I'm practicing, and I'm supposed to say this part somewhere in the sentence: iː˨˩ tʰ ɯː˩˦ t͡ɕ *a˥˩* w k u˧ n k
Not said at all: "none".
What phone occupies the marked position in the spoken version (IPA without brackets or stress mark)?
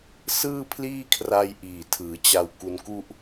a˧